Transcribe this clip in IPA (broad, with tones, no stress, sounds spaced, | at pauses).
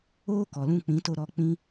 oː˦ k ɔ˨ l ũ˧ k͡p ĩ˨˦ t o˧ ɾ ɔ˧ k͡p ĩ˦